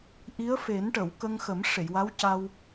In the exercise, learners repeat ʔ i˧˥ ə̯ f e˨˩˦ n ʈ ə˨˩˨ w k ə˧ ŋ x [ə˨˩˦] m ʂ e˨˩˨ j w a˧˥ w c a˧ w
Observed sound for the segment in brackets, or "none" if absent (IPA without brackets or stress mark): ə˨˩˦